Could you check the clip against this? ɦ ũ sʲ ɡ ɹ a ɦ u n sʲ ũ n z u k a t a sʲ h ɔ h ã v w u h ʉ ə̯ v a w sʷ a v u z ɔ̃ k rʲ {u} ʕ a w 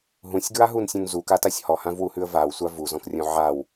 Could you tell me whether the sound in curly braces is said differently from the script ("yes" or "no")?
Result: yes